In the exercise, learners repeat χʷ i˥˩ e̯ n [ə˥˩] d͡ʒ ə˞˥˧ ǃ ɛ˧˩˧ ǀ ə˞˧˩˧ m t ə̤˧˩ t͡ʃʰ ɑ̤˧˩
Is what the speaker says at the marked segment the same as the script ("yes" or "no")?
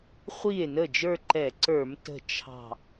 yes